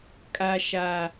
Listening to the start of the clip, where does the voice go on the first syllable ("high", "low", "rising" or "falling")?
low